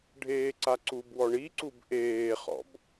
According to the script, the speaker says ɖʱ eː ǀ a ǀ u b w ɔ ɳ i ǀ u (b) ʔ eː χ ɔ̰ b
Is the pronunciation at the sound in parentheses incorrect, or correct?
correct